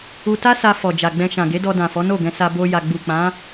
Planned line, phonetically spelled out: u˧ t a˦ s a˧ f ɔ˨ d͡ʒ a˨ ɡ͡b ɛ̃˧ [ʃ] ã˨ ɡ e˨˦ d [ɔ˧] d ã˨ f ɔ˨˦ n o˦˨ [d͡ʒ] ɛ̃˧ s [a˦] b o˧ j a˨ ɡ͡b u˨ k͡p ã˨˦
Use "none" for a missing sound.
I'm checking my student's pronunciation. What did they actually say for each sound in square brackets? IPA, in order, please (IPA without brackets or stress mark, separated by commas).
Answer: ʃ, ɔ˧, ɡ, a˧